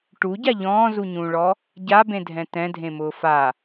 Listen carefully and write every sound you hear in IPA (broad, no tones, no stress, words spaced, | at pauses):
ʈuɟa ʎɔ̃ːzuɲũːɭɔ | ɟabẽdʱɛ̃ tɛ̃dʱẽmʊː fa